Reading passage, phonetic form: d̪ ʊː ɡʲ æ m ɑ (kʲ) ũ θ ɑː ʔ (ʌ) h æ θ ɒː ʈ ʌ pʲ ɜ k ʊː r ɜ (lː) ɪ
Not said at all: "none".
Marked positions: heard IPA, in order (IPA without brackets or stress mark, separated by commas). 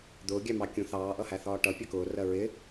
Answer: kʲ, ʌ, ɹ